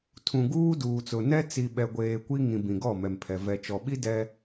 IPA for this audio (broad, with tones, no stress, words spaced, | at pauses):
tʰũ˨ɡuː˦duː˨t͡sʊ˨ nɛ˦t͡si˨ɓɛ˨ɡʷeː˨ kʷi˦ ŋĩ˨bĩ˨ ɡɔ˦˨mɛ˨mpʰɛ˨ vɛ˨t͡ʃɔ˨ɓi˦ dɛ˦